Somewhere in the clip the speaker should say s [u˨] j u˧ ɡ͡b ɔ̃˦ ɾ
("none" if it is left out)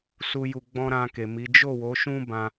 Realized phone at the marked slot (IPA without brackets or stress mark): u˧